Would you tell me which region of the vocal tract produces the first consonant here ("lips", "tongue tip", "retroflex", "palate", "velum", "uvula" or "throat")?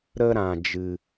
tongue tip